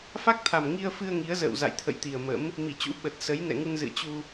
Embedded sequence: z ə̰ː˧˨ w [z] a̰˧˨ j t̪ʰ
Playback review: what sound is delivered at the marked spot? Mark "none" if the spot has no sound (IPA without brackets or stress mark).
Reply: z